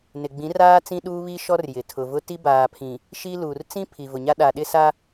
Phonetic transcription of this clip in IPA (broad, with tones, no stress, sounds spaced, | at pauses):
n ɪ˨ ɡ͡b ĩ˨˦ r aː˦ t͡s ĩ˦ ɗ uː˦ β i˦ ʃ ɔ˦ r j ɪ˨ tʰ ʊ˨ v ʊ˦ t i˦ b aː˨ pʰ ĩ˨ | ʃ i˦ l uː˨ r t͡s ĩ˦ pʰ i˨ v ʊ˨ ɲ a˦ ɗ a˨ ɗ ɪ˦ s a˦